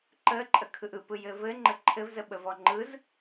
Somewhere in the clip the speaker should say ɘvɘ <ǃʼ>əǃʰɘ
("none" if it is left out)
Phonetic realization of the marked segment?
ŋ͡ǃ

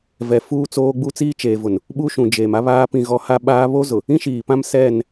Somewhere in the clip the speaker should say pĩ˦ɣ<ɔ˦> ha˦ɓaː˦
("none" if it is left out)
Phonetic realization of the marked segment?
ɔ˦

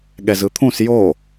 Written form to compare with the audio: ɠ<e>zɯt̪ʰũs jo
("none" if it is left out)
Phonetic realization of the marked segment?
ɛ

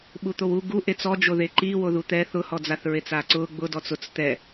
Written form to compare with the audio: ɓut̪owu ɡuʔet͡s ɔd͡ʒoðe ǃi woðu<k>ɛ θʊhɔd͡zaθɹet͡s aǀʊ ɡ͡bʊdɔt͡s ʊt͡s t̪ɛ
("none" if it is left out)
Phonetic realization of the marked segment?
t̪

